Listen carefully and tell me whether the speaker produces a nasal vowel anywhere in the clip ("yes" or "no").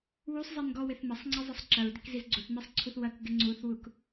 no